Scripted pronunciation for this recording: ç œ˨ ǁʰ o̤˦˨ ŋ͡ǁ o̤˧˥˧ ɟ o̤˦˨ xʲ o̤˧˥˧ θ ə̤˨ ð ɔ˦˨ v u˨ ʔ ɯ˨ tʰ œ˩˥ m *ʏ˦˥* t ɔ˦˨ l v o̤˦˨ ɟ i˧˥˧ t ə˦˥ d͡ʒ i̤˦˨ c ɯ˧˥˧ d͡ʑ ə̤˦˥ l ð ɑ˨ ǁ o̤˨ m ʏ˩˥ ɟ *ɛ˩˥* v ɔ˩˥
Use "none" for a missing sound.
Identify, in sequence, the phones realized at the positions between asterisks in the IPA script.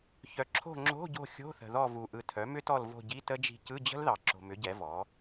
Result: ʏ˦˥, ɛ˩˥

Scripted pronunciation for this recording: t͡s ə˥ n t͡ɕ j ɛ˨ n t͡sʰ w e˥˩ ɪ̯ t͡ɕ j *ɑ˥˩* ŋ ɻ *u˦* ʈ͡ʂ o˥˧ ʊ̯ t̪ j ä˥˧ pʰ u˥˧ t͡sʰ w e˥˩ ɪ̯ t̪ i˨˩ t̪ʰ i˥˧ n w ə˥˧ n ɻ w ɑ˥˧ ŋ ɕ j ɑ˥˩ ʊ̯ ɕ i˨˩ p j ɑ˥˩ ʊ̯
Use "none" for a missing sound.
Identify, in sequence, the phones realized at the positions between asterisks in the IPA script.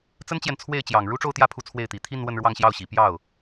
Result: ɑ˨˩, u˥

